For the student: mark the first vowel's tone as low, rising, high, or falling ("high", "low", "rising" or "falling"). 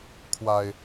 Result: low